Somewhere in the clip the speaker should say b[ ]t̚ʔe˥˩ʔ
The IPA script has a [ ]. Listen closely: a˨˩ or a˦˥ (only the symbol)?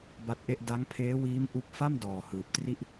a˦˥